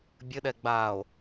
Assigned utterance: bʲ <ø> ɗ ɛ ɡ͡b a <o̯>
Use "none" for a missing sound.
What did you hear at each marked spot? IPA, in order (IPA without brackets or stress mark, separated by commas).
ɘ, o̯